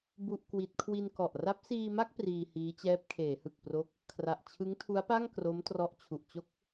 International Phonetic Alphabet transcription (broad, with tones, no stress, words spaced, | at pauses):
bu˥˩ʔkwi˦˥t̚ kʰwi˧nkɔ˨˩ʔ ra˦˥p̚ siː˧ma˥˩k̚ priː˧hiː˦˥t͡ɕɛː˦˥p̚ kʰeː˩˦hɯ˨˩k̚pro˦˥k̚ | kʰra˨˩ʔt͡ɕʰɯ˦˥ŋtʰu˦˥a̯pa˥˩ŋ kro˦˥m trɔ˦˥ʔt͡ɕʰu˨˩ʔt͡ɕo˥˩k̚